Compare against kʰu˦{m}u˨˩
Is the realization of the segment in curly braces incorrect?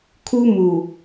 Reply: no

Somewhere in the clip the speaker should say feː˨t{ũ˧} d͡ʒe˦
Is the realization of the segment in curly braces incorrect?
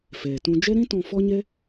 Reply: no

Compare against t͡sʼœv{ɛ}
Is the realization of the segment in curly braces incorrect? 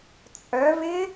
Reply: yes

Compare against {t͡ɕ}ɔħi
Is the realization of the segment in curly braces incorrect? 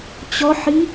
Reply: no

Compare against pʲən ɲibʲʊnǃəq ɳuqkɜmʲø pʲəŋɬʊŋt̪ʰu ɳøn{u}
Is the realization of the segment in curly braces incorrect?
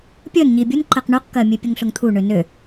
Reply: yes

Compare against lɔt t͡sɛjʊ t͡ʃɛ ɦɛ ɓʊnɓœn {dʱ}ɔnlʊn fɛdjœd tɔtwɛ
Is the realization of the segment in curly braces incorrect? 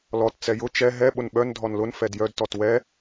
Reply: no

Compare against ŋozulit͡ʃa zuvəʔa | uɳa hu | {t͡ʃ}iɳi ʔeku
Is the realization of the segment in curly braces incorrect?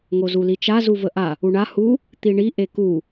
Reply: yes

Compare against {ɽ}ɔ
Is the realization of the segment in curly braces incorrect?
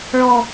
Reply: yes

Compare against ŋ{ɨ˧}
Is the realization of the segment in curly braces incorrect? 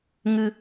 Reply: no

